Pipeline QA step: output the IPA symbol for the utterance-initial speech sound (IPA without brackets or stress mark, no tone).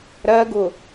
ɾ